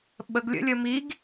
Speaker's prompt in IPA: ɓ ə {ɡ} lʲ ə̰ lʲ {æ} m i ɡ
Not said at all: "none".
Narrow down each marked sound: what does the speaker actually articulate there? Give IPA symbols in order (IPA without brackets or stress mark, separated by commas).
ɡ, ə